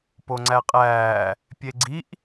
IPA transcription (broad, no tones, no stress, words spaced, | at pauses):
poŋ͡ǀæqʼæː | pʲeɡ͡ǀiʔ